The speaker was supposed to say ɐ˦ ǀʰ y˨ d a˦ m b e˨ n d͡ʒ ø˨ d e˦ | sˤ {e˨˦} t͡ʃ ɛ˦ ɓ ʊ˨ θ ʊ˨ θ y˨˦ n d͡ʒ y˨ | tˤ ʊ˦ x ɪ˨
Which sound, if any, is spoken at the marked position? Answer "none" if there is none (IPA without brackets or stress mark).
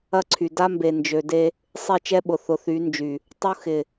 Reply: e˦˨